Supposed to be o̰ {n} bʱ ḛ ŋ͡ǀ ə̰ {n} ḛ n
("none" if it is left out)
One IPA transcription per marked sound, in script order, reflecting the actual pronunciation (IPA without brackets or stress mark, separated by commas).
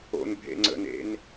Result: n, n